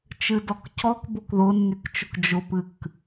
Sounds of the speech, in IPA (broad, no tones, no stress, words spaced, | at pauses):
t͡ʃɨdɔkcɔk bʊkðʊnːykt͡ʃʊk d͡ʒʊpɨk